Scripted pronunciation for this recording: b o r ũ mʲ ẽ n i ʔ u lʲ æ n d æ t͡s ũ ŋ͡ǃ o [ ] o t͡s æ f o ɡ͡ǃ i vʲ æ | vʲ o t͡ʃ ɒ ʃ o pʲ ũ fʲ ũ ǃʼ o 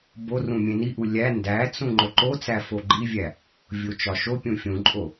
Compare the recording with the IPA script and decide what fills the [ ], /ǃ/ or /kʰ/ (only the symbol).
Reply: ǃ